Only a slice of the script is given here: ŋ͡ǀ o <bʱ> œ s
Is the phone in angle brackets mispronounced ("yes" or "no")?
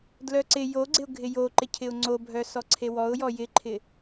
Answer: no